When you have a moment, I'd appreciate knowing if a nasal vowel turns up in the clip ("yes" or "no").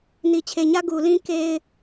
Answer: yes